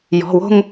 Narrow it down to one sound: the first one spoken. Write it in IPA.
j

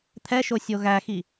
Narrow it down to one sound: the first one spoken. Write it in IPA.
t̪ʰ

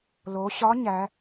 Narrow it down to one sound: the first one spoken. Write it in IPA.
l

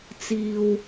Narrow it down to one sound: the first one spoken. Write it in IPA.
t͡s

